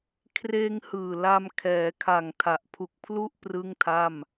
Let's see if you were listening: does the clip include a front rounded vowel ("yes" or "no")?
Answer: no